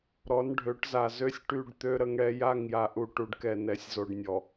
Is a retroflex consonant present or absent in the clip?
present